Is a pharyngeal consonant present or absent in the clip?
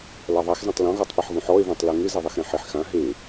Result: present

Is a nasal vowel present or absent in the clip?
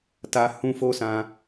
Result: present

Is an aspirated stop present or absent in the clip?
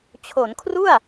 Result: present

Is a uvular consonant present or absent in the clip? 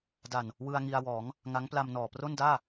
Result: absent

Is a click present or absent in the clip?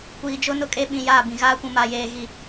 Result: absent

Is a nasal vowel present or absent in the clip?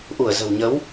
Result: absent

